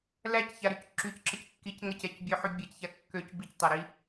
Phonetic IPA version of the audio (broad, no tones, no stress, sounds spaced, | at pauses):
l æ c ç a ɾ y c ǁ y c ǁ ə c kː i c ŋ ə c ɛ c bʲ ø ħ y bʲ ɛ c ç a kː ø c b i c tˤ a ɾ i